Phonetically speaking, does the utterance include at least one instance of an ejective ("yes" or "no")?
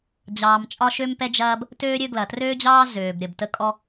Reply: yes